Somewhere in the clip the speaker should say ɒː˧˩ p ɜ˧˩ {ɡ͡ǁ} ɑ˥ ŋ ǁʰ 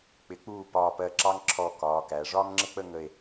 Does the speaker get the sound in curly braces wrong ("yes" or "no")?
yes